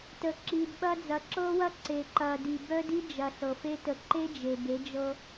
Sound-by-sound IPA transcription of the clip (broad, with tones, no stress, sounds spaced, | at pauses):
t ə˨ ǁ i˨ d ɓ ɐ˦ d͡z ɐ˨˦ ǁ ɤ˦ w ɐ˦ ǀ e˨ ǃ ɐ˨ d i˨ b œ˦ d i˦ d͡ʒ ɐ˨ ɬ ɤ˨ f e˦ t ə˨ ǃ e˦ d͡ʒ e˨ b e˨˦ d͡ʒ ɤ˦